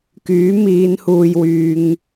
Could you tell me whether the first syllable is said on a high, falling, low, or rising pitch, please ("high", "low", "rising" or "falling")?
rising